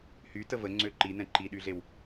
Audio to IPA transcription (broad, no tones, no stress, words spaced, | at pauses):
hy təvə ŋ͡ǀøǃinɛ̃ ǃiɗyɮew